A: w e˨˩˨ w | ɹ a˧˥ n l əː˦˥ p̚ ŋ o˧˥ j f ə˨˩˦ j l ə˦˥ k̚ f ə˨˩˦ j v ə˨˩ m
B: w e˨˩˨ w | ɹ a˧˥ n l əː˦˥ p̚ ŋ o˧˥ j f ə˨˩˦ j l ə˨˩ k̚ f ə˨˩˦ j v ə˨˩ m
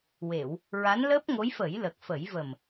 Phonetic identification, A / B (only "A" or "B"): B